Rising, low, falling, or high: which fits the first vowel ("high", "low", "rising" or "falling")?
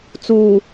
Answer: low